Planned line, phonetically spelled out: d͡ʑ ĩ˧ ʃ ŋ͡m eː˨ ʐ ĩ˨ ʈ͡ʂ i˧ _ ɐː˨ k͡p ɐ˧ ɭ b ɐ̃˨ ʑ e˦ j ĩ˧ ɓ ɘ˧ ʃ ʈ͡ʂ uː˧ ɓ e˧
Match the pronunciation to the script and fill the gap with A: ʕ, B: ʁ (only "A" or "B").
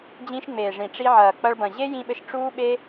A